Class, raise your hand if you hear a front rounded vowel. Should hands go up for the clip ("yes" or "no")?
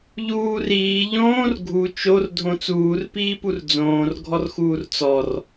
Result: no